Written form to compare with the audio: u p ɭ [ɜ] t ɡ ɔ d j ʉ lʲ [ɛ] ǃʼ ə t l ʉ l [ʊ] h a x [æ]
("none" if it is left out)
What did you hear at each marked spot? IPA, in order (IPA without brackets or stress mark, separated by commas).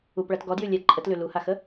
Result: ɜ, ɛ, u, ə